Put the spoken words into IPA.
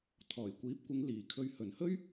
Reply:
t̪ʰ ɔː˨˩ j kʷ iː˨˥ p̚ kʷ ɪ˨˧ ŋ l iː˨˩ kʰ ɵ˧ ɥ h ɵ˨˩ n h ɵ˥ ɥ

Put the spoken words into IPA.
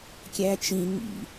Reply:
kʲ æ t͡ʃ ĩ ŋ ḭ

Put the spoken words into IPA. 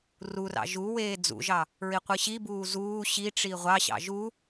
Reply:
r u r ɑ̰ ʒ u w eː d͡z ṵ ʒ ɑ | ɹ i qʷ ɯ ɕ i b uː z uː ɕ i ʈ͡ʂ i ʁʷ ɑ ɕ ɑ̰ ʒ u

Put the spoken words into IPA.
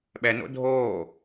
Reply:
ɓ ɛ n o̰ dʱ oː

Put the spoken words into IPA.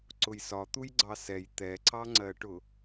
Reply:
ǀ ʊ j s ɒ t̪ u j ɡ͡ǀ ɑ s ɛ j t̪ ɛ ǀ ɑ ŋ͡ǀ ɜ ʈ ʊ

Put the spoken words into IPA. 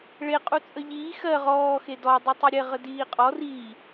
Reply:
ɭ e qʼ u t͡sʼ ə ʎ iː x ɜ ʁ ɔː x e d ɔ dˤ i tˤ i ɾʲ ɛ ʁ ə d iː qʼ ɔ r i

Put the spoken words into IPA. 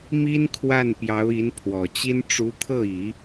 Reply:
m i˥ n kʰ w a˥˩ n p j ɑ˧˥ ʊ̯ i˧˥ n pʰ w ɔ˨˩ t͡ɕ i˥ n ʈ͡ʂ u˧˥ t̪ʰ ɤ˥˩ i˨˩˦

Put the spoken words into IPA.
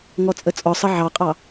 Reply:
ŋ ɔ t͡sʼ ə t͡sʼ ɔ sˤ ə ʕ ɑ qʼ ɑ

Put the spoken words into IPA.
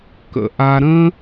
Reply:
k ə̰˨ ʔ a˧ ɾ ə̃˦

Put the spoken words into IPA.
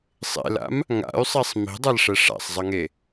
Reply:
sˤ ḛ l a̰ m | ŋ a̰ y̯ sˤ ɛ sˤ m i̤ dˤ a l ʂ ɛ ʂ a̰ sˤ zˤ ʌ ŋ e

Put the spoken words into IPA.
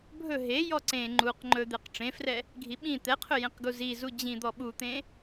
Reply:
bʱ ɵ ɦ e j ɔ ǀ ẽ ŋ͡ǃ u q ŋ͡ǃ ɵ d̪ e q ʈ͡ʂ ẽ f r ɛ | ɡʱ i ɓ ĩ t̪ ɛ qʰ ɵ j ẽ q ɡ u z i z u d͡ʑ ĩ d̪ ɔ ɓ u t̪ ẽ

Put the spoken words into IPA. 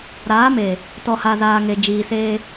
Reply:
ɾ aː˨˦ m e˨ | t ɔ˨ h a˨ z aː˨ ŋ e˨ d͡ʒ iː˨ s eː˦

